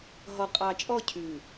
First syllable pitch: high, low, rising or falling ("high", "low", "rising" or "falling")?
low